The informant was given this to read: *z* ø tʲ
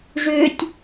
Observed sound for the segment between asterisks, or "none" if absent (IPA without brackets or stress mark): ʐ